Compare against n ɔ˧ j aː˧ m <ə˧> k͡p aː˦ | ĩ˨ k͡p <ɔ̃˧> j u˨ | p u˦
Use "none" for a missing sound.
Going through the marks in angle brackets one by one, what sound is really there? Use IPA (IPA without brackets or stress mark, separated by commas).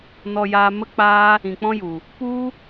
ə˦, ɔ̃˦